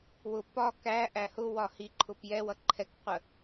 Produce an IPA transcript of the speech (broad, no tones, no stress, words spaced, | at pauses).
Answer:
wʊ pɒ kæ ʔæhʊwɒ hiǃʰʊp jɛwʌ ǃʰɛkqʷə